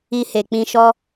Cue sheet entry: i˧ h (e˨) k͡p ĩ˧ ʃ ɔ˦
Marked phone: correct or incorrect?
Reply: correct